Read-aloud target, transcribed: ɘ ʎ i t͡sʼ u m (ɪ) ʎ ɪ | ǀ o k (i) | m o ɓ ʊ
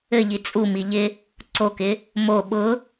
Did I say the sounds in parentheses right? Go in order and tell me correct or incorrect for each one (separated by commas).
incorrect, incorrect